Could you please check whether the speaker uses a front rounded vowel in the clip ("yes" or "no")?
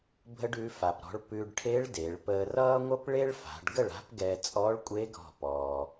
no